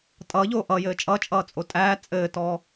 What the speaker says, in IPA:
tʼ ʌː ʎ oː ʔ ʌ j ɘː t͡ʃʼ ʌ t͡ʃʼ ʌː t͡sʼ o tʼ æː t͡sʼ ɘː t ɔ

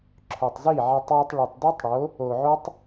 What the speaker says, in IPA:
ǁʰ œ˨ tˤ z i˦˨ ʕ e˧ tˤ j i˧ tˤ ɭ u˨ tˤ d ʉ˦ tˤ ɽ o˨˦ | o˨ ʕ o˦ tˤ

